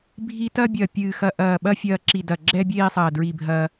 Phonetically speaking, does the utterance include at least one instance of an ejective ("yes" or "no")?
no